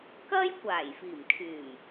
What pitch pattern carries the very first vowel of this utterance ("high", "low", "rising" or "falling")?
high